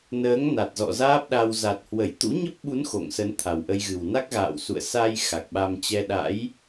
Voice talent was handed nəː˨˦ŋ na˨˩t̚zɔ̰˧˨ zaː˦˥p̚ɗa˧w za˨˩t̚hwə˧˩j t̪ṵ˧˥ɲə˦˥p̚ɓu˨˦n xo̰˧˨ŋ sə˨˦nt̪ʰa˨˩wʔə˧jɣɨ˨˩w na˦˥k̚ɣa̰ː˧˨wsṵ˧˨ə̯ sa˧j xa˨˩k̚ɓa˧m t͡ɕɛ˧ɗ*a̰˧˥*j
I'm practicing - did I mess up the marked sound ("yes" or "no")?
no